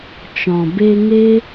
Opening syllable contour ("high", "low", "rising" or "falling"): low